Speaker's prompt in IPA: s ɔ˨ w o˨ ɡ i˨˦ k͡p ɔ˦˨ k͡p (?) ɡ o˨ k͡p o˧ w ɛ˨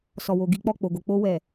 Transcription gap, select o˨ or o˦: o˨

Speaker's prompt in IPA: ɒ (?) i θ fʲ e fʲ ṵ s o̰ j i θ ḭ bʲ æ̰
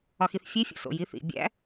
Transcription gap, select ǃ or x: x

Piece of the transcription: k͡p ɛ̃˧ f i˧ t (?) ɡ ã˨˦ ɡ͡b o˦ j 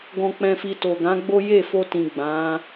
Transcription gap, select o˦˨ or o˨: o˨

